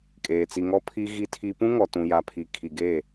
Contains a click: no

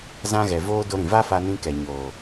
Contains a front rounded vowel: no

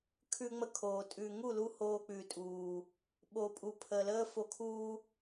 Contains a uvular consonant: no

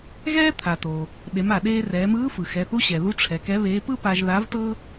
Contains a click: no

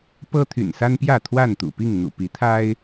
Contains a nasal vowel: no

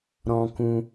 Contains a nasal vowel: yes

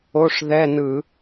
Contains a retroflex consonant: yes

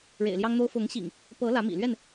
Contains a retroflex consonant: yes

